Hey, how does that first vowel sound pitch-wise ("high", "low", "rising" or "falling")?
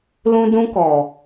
high